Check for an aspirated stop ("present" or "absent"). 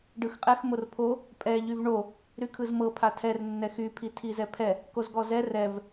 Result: present